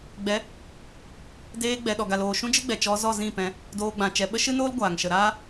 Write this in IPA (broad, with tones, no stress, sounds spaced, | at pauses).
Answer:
ɡ͡b ɛ˨˦ | d eː˧ ɡ͡b ɛ˨ ɗ ɔ˨ ɡ a˨ l oː˨ ʃ ũ˦ d͡ʒ ɨ˦ ɡ͡b ɛ˨ t͡ʃ ɔ˧ z ɔ˦˨ z ĩ˦˨ p ɛ̃˧ | d oː˧ ɡ͡b ã˨ t͡ʃ ɛ˧ ɓ ə˦ ʃ ɨ˦ n oː˦ l ɡʷ aː˨ ŋ ʃ ə˧ ɾ aː˦